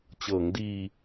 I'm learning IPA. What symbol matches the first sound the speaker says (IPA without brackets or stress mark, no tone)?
t͡ɕ